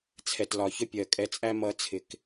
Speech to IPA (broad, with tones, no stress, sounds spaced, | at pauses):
t͡sʰ ɛ˨ t l ɒ˨ ç ə˦ pʲ ɜ˨ kʼ ɛ˨ t͡sʼ æ˦ m ʌ˨˦ t͡sʰ ɪ˨ k